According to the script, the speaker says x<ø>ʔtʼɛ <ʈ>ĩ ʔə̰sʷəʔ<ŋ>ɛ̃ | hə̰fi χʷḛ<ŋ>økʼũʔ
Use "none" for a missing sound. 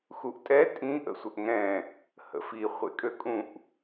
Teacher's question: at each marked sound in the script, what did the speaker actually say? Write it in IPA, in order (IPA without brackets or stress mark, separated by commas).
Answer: u, tʼ, ŋ, kʼ